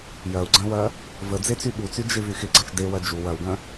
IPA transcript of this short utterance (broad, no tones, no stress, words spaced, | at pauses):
jɐu̯ɡ͡ǀɐ̃wɐ | vəd͡zet͡sy ɠut͡sy d͡ʒɪvy xɪɡ͡ǀɐt͡ʃ dewɐ d͡ʒu wɐwɡɐ̃